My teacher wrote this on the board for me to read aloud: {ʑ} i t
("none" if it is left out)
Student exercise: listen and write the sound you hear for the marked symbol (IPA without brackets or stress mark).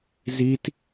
z